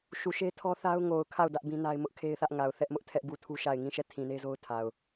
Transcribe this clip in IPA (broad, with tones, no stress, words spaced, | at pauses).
ʃu˨ʃe˦ tʰɔ˦θa˦ʊ̯ ŋo˨ʊ̯kʰa˦˨ʊ̯ dä˦ʔbĩ˦na˦ɪ̯mʊ˦ʔ kʰe˦ɪ̯θä˦ʔ ŋa˨ʊ̯ θɛ˦ʔmʊ˦ʔtʰɛ˦ʔbu˦˨ tʰu˦ʃa˦˨ɪ̯ ŋĩ˦˨ ʃɛ˦˨tʰĩ˨ne˦zo˦ʊ̯ tʰa˨ʊ̯